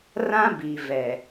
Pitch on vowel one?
high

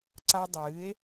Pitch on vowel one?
high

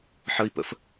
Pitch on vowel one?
high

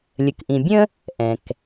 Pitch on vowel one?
low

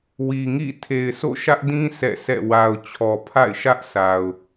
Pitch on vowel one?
low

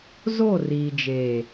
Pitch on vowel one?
falling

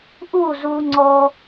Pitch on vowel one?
falling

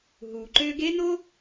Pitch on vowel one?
low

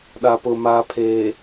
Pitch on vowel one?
low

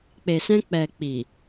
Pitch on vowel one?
low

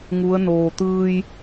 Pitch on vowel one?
rising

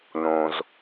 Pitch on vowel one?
low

